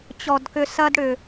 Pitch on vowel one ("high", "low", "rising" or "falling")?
low